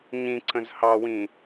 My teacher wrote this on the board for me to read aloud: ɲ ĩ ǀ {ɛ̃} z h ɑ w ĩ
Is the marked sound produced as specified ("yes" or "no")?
no